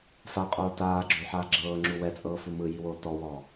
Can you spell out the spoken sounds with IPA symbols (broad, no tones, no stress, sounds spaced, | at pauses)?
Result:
f a qʼ oː t aː ɡ͡ǁ o ħ aː ɡ͡ǁ ɤː ŋ͡ǁ u w ɛ t͡sʼ ɤː f u m ɯ j i w oː t ɔ w ɔ